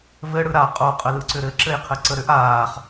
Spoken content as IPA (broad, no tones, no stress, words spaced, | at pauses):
vɘɽɯ ɾa qʼoqʼəlɯǀʏ ɾɘ ǁɘjqʰɘǀəɾʏʔ aːχ